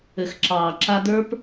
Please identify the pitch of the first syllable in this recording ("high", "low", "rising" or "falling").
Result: low